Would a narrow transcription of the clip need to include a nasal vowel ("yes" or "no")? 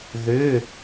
no